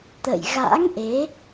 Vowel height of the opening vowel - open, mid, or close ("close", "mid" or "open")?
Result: mid